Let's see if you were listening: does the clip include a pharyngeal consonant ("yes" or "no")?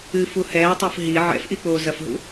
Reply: yes